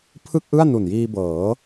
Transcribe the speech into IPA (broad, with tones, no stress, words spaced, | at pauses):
pʰɯ˥˩k̚ʔɯ˥˩a̯ nu˨˩njiː˧bɤː˩˦